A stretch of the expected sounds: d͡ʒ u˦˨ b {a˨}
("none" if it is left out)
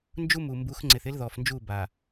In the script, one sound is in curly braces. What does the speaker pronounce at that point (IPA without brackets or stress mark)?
a˨